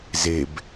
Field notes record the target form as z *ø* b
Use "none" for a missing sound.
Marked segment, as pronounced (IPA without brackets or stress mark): e